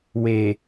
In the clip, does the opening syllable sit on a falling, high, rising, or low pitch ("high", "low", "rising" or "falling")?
low